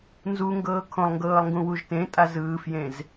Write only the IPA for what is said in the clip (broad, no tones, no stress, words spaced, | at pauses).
nzuŋɡɤː kʰõlˠŋɡɤːlˠŋɡũwuʒ tẽtʼazɯːfjẽz